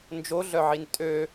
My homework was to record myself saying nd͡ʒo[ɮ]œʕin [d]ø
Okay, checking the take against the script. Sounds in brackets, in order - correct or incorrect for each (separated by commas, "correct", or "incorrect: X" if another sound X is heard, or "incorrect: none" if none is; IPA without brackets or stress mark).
correct, incorrect: tʼ